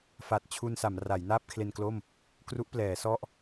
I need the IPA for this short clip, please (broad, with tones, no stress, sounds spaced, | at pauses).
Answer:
f a˨˩ t̚ t͡ɕʰ u˧ n s a˩˦ m r a˩˦ j n aː˥˩ p̚ kʰ l e˧ n k l o˥˩ m | k r u˦˥ ʔ p l ɛː˩˦ s ɔ˥˩ ʔ